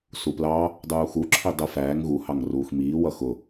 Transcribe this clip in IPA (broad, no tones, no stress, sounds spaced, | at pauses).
s u p l ɑ | dˤ uː x u ǁʰ i dˤ ə f æː ŋ ɣ u h ɑ ŋ r uː x m iː w ʌ x ʊ